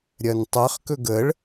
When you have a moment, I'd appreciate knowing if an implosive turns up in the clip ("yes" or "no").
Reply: no